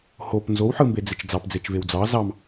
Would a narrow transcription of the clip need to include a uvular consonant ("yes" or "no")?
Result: no